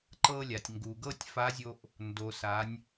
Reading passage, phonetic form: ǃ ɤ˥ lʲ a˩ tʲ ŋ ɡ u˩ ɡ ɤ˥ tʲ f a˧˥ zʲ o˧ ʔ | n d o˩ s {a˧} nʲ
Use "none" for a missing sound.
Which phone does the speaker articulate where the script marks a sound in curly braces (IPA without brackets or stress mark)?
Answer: a˩˧